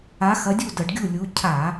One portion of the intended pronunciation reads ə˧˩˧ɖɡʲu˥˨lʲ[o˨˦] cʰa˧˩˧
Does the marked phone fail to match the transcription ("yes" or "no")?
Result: yes